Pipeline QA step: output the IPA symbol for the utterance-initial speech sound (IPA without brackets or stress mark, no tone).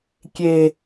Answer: kʲ